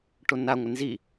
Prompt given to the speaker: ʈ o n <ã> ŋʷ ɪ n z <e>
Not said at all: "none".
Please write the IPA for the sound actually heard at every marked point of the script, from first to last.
a, i

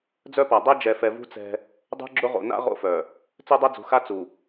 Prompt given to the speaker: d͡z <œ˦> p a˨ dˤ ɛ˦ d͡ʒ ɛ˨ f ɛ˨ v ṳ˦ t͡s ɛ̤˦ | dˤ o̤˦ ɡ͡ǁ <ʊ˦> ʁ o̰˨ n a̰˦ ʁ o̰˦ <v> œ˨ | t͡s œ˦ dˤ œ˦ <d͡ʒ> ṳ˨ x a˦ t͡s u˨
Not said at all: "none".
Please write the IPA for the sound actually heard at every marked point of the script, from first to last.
œ˦, ʊ˦, f, d͡z

